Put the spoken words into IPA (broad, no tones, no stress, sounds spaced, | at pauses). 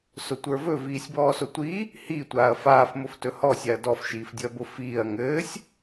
s ʊ tʷ ə˞ v ɵ v iː sʲ b ɔː s ʊ tʷ i | h i tʷ aː ɐ̯ f aː f m ʊ f t ɵ h ɔ sʲ a ɐ̯ d ɔ f ʃ iː f dʲ ʊ ɐ̯ b ʊ f iː ɐ̯ ŋ ɘː sʲ